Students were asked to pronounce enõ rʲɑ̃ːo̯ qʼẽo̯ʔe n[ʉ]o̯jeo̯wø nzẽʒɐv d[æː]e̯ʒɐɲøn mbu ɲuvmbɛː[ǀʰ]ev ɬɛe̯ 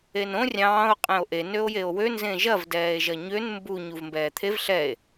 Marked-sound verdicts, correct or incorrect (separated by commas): incorrect, incorrect, incorrect